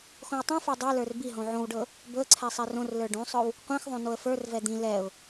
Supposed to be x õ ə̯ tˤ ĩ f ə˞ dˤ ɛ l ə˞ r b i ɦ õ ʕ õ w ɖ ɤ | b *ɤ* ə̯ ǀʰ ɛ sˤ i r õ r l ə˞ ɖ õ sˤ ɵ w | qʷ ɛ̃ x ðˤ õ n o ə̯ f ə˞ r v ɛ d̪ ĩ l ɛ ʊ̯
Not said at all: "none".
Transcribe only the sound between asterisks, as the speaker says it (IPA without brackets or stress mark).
ɵ